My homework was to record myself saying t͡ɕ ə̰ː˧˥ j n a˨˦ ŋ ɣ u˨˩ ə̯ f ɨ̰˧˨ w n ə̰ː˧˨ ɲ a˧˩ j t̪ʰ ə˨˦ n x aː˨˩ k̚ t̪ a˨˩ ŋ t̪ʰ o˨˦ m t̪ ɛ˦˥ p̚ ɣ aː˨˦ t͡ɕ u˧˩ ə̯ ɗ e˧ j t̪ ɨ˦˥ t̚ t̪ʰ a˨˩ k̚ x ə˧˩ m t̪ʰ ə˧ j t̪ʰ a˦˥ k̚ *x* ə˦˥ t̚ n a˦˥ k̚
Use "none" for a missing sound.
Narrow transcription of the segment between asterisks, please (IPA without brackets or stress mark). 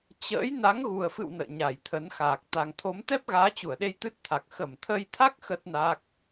x